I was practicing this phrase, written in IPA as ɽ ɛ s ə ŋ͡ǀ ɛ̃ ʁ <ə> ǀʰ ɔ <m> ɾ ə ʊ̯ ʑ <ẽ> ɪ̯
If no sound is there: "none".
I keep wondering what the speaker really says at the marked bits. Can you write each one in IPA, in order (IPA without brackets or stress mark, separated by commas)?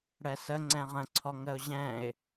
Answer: ə̃, ŋ, ɛ̃